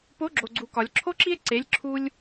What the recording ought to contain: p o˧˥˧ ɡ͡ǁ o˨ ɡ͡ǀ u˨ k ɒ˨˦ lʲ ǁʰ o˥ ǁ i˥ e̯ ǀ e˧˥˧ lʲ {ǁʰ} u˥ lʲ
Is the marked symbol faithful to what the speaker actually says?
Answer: yes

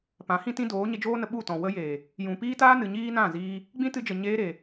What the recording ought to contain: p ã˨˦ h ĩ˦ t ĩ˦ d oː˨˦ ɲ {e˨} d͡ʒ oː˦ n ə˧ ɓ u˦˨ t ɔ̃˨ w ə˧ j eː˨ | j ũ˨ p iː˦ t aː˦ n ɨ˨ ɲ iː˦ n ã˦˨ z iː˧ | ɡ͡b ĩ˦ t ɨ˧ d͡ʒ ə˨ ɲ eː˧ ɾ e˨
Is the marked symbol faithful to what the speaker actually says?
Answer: no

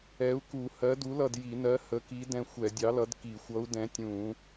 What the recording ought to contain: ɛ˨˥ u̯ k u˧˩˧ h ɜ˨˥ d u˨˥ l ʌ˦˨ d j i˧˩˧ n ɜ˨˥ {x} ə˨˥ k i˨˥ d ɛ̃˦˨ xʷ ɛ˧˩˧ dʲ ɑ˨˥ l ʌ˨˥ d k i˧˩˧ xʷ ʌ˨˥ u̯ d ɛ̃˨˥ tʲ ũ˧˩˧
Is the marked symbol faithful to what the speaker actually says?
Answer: no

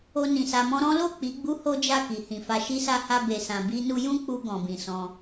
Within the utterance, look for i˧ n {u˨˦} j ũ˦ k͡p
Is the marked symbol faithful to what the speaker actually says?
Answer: no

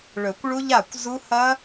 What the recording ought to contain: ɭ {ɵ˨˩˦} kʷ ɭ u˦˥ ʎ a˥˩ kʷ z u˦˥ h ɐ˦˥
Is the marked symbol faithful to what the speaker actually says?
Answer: yes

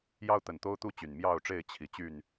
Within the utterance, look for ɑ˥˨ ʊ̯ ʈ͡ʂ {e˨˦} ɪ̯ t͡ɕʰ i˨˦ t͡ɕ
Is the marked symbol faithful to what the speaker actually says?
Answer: no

